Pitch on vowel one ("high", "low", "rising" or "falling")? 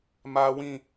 high